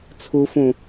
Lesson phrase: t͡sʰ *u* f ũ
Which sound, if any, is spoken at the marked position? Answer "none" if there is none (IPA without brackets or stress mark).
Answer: u